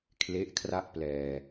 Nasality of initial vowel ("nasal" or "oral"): oral